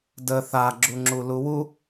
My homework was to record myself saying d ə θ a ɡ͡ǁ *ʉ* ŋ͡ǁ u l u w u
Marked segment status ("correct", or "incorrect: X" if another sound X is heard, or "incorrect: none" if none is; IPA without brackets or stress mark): incorrect: u